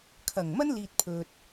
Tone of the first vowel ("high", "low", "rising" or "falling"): low